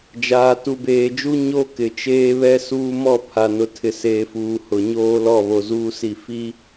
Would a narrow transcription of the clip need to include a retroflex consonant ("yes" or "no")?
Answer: no